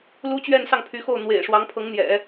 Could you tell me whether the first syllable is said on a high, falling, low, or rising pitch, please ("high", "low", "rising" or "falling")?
high